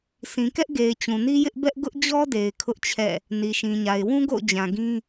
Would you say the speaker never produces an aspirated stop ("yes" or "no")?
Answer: no